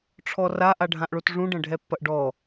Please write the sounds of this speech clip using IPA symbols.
ʈ͡ʂʰ ɔ r a ʔ a ɖʱ ã ʔ ɭ o t ʐ ũ ɖ ɐ̃ ɖʱ ɛ pː ɐ ʔ ɖ ɔ

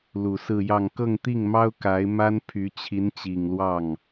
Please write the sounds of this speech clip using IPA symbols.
l u˨˩ s ɹ̩˥˧ j ɑ˥˧ ŋ k ɤ˥˧ ŋ t̪ i˥˩ ŋ m ɑ˥ ʊ̯ k a˧˥ ɪ̯ m a˥ n pʰ y˧˥ t͡ɕʰ i˧˥ n t͡ɕ i˨˩ ŋ l w ɑ˥˩ ŋ

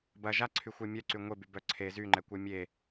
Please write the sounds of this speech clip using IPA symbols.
b ɐ ʒ a ǀʰ y xʷ œ mʲ œ ǀ y ŋʷ e b y b œ ǀʰ e z y ŋ͡ǃ ɛ kʷ œ mʲ e

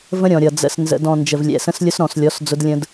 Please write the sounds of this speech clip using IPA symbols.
v ə̃˦ ɾʲ ɔ̃˨ ɾʲ ʌ˨ d͡z ə̰˨ s n z ə̰˨ d ɔ̃˨ n d͡ʒ ə˨ v lʲ ɛ̰˨ s ə̃˦ s lʲ ʊ˦ s ɾ ɔ̃˨ s lʲ ɔ˨˦ s d͡z ʊ˦ d lʲ ə̃˦ d

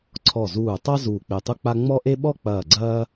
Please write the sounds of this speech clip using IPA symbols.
ǀʰ ɔ˧˩ z uː˧˩ tˤ a˥ z uː˧˩ k͡p e˧˩ tˤ u˥ k͡p a˥ ŋ͡m ɔ˥ ʔ e˥ ɓ ɔ˥ k͡p ɐː˧˩ ɡ͡ǀ ɐː˥

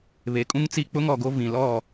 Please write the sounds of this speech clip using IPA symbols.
β e˨˦ kʼ ũ˦ ŋ t͡s i˦ k͡p ʊ˦ ŋ ɔ˨ ɡ o˦ v ĩ˨ l ɔ˦˨

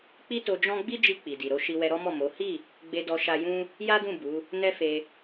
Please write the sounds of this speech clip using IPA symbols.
k͡p i˦ t o˧ d͡ʒ ɔ̃˦ ɡ͡b i˦ d͡ʒ i˧ k͡p i˨ d i˨ ɾ o˨˦ ʃ i˧ w ɛ˧ ɾ ɔ˦ m ɔ˦˨ m o˨˦ h i˦˨ | ɡ͡b e˧ d ɔ˧ ʃ a˧ j ũ˦ | j a˦ d ũ˦˨ b u˨˦ | n ɛ˦ f e˧

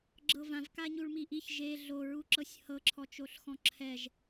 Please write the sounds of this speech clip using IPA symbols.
ɡ͡ǁ ɤ v ã v k a ɲ u ɭ m i ʔ i ç ʒ e ɮ o ɹ u ǁ ɤ sʲ h ɤ ǁʰ ɔ t͡ʃ o ɬ x ɔ̃ ǁʰ ɛ ʒ

